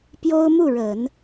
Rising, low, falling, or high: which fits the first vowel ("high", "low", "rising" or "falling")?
high